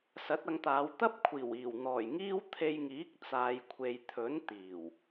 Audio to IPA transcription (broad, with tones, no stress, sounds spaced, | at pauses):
s ɐ˨˥ t̚ ɐ˨˧ ŋ t̪ aː˨˧ w t̪ ɐ˥ p̚ kʷʰ iː˨˩ w iː˨˩ w n̪ ɔː˨˩ j ŋ iː˥ w t̪ʰ e˧ j ŋ iː˨˥ k̚ t͡s aː˨ j kʷʰ e˨ j t̪ʰ ɵ˨˥ n t̪ iː˨˩ w